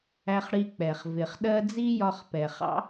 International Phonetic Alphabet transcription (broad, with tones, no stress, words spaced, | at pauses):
æ˧χɽi˧k͡pɛ˩χ vɪ˩χɗɜ˥ d͡zi˥jɒ˧χpɛ˩χɑ̰˥